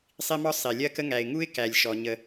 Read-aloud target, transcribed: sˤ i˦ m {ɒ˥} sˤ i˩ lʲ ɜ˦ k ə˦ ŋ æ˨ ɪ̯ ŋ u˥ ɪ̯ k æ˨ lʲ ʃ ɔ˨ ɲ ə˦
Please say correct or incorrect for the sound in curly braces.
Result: correct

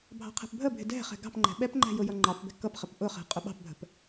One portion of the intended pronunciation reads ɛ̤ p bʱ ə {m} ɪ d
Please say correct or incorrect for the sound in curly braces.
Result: incorrect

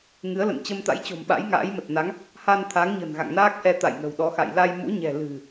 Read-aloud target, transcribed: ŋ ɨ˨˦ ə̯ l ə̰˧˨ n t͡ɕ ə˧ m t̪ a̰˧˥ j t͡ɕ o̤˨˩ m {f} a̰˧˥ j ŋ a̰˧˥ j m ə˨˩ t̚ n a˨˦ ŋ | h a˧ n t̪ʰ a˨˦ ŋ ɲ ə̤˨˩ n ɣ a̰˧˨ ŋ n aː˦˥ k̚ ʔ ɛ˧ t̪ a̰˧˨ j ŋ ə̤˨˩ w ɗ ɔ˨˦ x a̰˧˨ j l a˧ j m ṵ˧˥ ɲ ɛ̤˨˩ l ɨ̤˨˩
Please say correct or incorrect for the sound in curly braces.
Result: incorrect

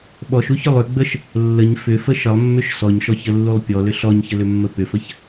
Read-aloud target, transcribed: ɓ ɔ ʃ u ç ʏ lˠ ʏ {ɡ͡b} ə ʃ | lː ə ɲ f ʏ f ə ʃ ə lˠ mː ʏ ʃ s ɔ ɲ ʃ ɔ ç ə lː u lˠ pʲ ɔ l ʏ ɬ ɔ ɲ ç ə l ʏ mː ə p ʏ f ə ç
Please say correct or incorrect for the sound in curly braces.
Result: correct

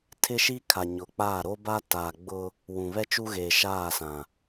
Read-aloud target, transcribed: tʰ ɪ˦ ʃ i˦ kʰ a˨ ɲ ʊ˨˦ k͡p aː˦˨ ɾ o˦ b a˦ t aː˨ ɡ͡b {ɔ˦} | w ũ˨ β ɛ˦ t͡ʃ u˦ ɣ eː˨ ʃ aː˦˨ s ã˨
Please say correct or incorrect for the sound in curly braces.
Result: incorrect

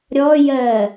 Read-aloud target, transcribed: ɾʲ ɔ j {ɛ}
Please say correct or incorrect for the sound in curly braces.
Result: incorrect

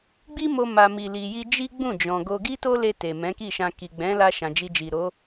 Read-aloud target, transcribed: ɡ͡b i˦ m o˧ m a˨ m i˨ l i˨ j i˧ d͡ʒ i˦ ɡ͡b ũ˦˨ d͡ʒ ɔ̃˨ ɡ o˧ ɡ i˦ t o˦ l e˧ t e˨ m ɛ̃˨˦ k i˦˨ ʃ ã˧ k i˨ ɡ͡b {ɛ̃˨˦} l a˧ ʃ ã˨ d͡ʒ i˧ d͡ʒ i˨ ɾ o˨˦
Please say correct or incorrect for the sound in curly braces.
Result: correct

